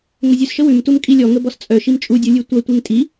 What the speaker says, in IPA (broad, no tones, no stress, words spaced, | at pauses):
ŋəzʲʉsʃə wʉmtum kʼilʲɔ ŋəbɔst͡sʼœ ʃimt͡ʃʼudʲu lʲʉtʷɐ tʷeŋtʼi